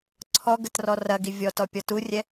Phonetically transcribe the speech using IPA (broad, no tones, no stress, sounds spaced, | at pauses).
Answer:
ǀʰ ɔ ɡ ə t r ɔ r ɐ ɡ i vʲ ɔ t ɔ pʲ ɔ t u rʲ ɛ